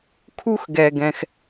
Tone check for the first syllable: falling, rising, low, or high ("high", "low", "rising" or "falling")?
high